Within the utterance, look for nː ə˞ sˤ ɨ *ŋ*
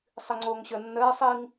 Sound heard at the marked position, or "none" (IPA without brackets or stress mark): ŋ